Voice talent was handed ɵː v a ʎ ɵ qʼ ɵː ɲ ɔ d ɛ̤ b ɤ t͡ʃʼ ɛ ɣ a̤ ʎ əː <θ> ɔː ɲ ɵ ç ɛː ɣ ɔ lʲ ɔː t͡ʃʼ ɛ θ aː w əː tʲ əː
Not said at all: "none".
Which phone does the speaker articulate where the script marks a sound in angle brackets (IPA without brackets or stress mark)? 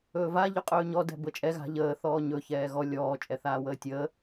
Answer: θ